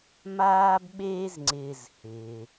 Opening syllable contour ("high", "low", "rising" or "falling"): high